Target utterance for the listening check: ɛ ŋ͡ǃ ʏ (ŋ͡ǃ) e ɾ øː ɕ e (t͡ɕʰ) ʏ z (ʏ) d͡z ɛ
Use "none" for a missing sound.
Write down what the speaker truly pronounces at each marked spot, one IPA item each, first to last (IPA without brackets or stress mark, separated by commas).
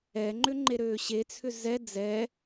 ŋ͡ǃ, t͡sʰ, ɛ